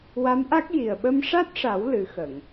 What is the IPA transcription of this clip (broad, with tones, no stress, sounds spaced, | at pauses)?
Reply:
w a˧˥ m ʔ a˦˥ k̚ j i˨˩ ə̯ ɓ ə˧ m ʂ a˦˥ t̚ ʂ a˨˩˦ w l ɨ˨˩˦ x ə˨˩˨ ŋ